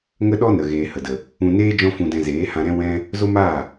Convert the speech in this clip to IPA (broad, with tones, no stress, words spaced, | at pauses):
ŋə˦ɗɔ˦ nə˨ɣeː˨ hə˨də˨ | ũ˧neː˦ d͡ʒɔ̃˦fũ˧dɛ̃˧ zeː˨˦hã˧ɾɛ̃˦ wɛ̃˦ | zo˦maː˦˨